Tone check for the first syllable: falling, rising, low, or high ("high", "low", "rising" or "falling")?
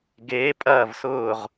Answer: rising